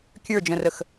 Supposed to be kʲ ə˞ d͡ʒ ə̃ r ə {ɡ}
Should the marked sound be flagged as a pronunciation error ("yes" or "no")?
yes